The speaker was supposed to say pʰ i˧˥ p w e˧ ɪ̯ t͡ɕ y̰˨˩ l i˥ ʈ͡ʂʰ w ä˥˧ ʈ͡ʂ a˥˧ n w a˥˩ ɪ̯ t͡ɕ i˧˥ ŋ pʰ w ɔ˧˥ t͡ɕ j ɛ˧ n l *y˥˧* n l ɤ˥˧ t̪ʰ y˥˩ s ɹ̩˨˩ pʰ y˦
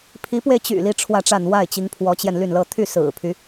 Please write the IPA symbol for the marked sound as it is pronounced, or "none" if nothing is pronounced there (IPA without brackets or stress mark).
y˥˧